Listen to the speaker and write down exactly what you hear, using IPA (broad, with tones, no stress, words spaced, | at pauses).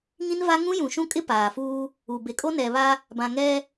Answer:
ŋĩ˦nva˦ ŋũ˦ jũ˨ʃũ˦kʼɪ˦ paː˨fuː˦ | u˨be˨kʼo˦ nɛ˨βa˦ | bã˨ ŋɛ˦